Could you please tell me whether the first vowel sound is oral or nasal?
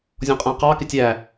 nasal